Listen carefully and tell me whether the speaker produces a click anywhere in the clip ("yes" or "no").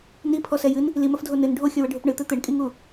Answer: no